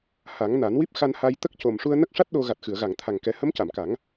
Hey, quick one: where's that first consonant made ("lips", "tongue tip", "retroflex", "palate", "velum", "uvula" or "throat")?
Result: throat